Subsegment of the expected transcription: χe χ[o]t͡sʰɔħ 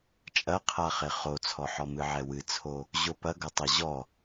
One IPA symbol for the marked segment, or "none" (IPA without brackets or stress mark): o